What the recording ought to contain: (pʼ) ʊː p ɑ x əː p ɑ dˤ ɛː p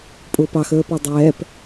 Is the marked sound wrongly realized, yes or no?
no